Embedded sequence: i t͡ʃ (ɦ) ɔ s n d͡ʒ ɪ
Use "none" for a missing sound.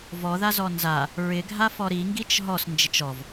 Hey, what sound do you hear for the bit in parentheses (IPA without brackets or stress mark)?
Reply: ɦ